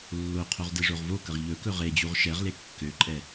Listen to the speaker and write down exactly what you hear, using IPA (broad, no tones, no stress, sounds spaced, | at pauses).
lː o qʰ o ʁ d e ʐ o ʁ v o k ə ʁ ʎ ɵ k ɵ ʁ e d͡ʑ u ʁ ʃ ɛ ʁ l e kː ø ǃʼ ɛ